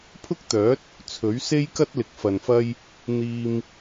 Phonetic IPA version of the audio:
pʰʊ˥k̚t̪œː˨˥t̚ | t͡sʰɵ˨˥ɥse˥jkɐ˥t̚ lɪ˨˥k̚fɐ˨nfɐ˥j | n̪iː˧m

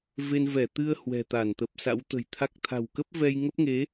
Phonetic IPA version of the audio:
ve˧nvɛ˧˩ t̪ɨ˧ə̯ hwɛ̤˨˩t̪a˧˩nt̪ə˨˩p̚sa̰˧˥w t̪ə̤˨˩jt̪ʰa˦˥k̚ t̪ʰa̤˨˩wkə˦˥p̚vɛ˧j ŋə˦˥p̚ŋe˨˦

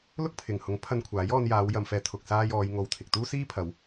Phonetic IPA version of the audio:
lʊ˥k̚pʰɪ˨ŋhʊ˨˥ŋpʰɐ˧n kʷʰaː˨˥j ɔː˧njaː˨˧w jɐ˨mfɛː˨˧ t̪ʰʊ˨k̚ saː˧j ɔː˨˧jŋo˨˧wt̪ʰɪ˨k̚t̪uː˥ siː˥pʰɐ˨˧w

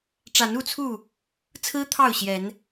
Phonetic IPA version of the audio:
ʈ͡ʂa˨˦nu˥˨t͡sʰu˥˨ | t͡sʰɹ̩˦ t̪ʰɑ˥˨ʊ̯ ɕjɛ˨˦n

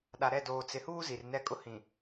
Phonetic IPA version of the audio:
ɗa˨ɾɛ˦˨ doː˨t͡sɪ˨huː˦ zi˨rnɛ˦kʼʊ˦ hĩ˨

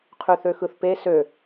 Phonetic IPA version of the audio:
qʰyθøxɯθpe sø

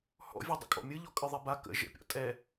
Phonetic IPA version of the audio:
hɔ̰vʲɛdˤə̰ kʼɔ̰mʲɯ ʎɔkʼɯðˤɛba kə̰ ʒə̰pʲɔ̰ tʼɛ

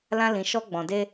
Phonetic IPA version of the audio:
lã˦lĩ˧ʃɔ˦ ɡ͡bɔ̃˧de˦

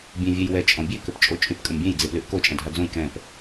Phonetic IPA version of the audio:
bʲẽvʲɛjwɛ t͡ʃʼɔ̃bʲe køpt͡ʃʼot͡ʃʼyp kʼəmbʲẽj d͡zeplyʔko t͡ʃʼɛ̃dʱad͡zõj kɛ̃p

